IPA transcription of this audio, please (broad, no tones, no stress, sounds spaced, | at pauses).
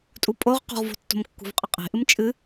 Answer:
tʼ u pʼ o ʁ q ṳ ʁ v o̤ tː o̤ m kː ṳ v qʼ ɐ qʼ e̤ ʔ ɨ m t͡ʃʼ ɨ